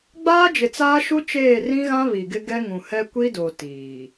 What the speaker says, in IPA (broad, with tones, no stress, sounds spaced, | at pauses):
ɡ͡b aː˦ d͡ʒ ɪ˨ t͡s aː˦ ʃ u˦ t͡ʃ eː˦˨ r ĩ˦ ɣ ã˦ β i˨ ɡ ɪ˦ ɡ ɛ˦ ŋ ũ˨ h ɛ˦ kʷ i˦ d o˨ t iː˨